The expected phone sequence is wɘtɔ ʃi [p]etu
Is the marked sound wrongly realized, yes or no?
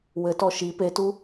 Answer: no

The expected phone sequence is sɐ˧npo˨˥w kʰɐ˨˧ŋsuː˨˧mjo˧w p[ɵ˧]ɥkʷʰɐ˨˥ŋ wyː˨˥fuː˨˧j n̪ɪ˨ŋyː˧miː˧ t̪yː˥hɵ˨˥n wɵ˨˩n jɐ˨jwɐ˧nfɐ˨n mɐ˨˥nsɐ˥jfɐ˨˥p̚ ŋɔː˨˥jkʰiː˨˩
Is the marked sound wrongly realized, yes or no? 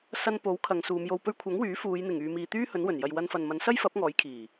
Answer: no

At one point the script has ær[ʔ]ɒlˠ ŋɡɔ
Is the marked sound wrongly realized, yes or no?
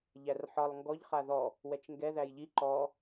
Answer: yes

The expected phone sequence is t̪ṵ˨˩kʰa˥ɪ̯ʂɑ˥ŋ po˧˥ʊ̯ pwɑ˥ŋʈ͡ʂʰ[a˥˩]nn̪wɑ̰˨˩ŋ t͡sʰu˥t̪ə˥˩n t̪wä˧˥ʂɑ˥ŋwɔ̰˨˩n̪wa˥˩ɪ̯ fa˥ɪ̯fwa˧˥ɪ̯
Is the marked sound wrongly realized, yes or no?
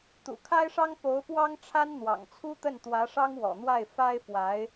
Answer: yes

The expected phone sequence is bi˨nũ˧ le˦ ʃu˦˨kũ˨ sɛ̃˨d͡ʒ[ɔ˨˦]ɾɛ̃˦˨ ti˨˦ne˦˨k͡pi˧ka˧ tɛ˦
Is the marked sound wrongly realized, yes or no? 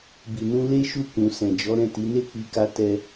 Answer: no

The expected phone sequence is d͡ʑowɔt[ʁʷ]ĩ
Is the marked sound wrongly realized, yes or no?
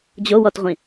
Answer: no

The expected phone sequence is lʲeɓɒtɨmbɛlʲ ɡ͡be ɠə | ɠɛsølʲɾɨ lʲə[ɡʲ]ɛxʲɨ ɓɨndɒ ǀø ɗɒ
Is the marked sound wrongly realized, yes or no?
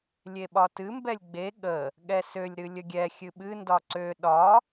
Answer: no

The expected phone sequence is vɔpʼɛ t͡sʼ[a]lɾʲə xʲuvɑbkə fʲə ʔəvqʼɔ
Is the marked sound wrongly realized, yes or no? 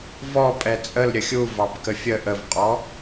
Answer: yes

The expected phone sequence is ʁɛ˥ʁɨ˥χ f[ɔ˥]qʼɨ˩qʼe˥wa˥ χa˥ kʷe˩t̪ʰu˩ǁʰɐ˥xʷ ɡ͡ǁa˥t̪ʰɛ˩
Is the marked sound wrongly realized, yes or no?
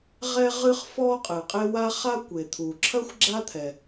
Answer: no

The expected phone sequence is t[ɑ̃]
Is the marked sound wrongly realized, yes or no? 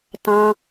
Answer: no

